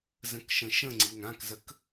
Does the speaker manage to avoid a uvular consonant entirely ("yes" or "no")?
yes